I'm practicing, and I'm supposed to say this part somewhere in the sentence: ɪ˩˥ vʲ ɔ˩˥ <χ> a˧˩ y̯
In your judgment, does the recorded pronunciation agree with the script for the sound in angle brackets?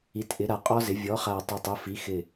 yes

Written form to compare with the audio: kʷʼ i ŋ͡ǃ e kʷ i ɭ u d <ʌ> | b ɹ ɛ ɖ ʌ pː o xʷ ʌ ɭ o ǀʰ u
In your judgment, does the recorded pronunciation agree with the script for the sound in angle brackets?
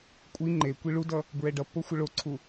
yes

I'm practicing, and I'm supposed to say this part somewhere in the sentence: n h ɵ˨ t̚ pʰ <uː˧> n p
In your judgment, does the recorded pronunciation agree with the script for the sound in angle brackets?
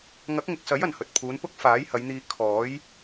no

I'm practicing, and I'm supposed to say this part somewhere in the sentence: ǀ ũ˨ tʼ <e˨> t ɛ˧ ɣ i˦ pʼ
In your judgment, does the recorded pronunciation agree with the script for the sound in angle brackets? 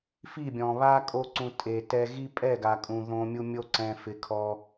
yes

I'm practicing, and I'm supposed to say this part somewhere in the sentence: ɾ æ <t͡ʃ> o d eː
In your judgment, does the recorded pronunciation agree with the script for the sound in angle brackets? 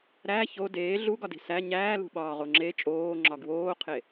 no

